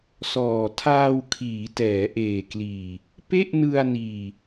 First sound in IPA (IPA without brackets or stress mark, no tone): s